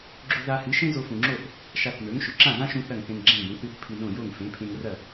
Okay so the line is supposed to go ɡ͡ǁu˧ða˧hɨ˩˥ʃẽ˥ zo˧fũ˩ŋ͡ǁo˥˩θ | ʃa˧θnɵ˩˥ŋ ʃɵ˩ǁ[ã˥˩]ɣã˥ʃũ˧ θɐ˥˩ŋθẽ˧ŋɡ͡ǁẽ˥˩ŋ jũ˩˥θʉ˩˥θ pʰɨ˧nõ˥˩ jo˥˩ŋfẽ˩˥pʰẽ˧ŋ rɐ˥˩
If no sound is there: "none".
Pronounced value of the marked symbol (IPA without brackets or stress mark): ã˥˩